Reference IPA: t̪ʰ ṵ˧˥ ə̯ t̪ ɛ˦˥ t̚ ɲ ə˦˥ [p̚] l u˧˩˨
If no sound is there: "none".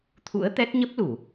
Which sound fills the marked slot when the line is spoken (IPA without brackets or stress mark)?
p̚